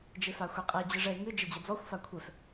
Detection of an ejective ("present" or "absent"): present